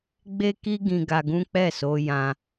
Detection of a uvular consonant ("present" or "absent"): absent